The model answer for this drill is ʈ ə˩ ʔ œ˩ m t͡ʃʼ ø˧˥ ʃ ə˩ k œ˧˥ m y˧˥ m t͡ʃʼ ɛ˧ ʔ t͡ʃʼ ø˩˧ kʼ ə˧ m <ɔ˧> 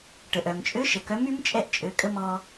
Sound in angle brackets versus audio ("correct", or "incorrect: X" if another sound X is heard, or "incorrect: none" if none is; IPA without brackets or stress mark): correct